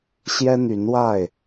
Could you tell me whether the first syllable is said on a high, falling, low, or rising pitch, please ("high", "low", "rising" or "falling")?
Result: high